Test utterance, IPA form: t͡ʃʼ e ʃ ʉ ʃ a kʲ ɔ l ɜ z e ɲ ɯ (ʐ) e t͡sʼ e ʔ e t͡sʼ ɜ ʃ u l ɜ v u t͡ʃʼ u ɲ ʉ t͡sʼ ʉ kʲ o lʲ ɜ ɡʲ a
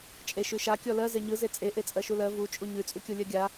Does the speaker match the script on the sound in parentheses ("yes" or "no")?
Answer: no